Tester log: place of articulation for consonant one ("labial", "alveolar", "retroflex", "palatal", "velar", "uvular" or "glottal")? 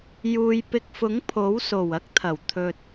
palatal